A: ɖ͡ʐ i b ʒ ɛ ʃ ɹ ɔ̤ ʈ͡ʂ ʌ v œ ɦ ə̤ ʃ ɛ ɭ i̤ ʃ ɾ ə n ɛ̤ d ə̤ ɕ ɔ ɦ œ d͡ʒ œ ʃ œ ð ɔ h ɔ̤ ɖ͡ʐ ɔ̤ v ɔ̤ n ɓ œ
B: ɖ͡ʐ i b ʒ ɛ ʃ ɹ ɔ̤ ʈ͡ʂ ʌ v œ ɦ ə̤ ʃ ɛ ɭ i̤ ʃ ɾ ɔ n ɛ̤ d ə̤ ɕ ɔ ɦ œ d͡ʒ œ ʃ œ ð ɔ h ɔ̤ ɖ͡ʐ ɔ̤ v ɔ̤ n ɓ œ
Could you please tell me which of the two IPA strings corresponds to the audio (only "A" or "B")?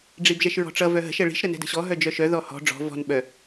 A